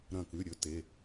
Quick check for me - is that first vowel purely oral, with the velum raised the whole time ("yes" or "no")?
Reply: no